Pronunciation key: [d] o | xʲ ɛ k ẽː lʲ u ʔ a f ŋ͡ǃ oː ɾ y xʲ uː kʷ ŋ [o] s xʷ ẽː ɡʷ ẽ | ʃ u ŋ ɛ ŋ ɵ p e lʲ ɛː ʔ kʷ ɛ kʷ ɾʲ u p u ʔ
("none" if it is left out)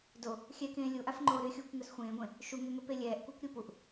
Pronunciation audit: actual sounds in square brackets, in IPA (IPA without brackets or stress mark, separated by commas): d, ɵ